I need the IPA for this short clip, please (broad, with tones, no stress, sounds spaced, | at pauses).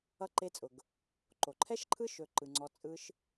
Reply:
ʌ˧ ǃ e˧ t͡sʼ ʊ˨ ɡ | ǃ o˨ ǃʰ ɛ˦ ʃ ǃʰ ɯ˦ ʃ ɵ˦ ǃ ɯ˧ ŋ͡ǀ ɔ˦ t͡sʼ ɯ˦ ʃ